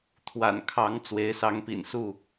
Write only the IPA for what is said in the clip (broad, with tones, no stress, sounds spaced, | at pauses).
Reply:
t̪ʰ w a̰˨˩ n kʰ ɑ˨˦ ŋ t͡s w e˨˦ ɪ̯ s ɑ˨˦ ŋ p ḭ˨˩ n s u˥˨